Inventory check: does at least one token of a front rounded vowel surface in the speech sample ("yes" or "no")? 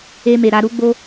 no